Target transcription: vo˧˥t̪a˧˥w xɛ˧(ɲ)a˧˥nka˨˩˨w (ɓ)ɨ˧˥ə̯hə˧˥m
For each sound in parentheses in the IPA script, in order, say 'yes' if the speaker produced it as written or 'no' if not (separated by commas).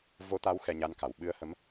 yes, yes